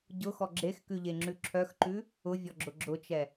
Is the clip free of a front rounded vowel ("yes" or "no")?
no